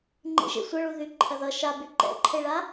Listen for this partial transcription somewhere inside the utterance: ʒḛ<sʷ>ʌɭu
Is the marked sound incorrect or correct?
correct